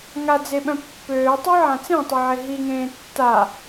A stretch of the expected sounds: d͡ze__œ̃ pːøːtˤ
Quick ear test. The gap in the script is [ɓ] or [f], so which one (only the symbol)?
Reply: ɓ